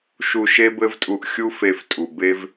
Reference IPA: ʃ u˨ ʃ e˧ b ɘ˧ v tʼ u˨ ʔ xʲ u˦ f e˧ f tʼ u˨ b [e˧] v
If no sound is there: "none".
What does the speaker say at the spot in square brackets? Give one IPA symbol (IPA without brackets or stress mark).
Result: e˧